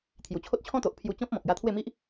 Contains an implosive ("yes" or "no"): no